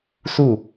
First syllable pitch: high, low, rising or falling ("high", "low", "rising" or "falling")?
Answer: falling